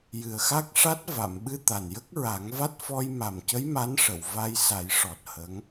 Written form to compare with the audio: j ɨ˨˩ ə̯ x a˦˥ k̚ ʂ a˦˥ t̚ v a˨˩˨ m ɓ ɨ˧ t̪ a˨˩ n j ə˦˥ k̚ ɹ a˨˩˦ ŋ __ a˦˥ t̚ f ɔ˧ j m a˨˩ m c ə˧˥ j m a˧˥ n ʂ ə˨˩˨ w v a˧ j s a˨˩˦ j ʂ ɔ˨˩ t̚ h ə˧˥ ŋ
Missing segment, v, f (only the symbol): v